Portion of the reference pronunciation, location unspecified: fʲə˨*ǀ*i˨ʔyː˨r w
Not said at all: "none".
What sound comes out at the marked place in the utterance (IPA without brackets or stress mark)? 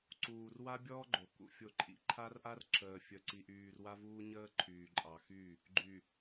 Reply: ǀ